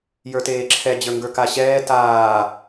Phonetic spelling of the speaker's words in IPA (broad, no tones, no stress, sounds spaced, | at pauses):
j ə˞ t eː ǁʰ ɛ d͡ʑ ə˞ ŋ ɡ ə˞ k a ɕ ɛː t aː